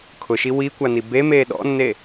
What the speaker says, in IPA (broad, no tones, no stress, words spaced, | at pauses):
kʰʊʃi wikʷani bemeː ɗɔ̰nːe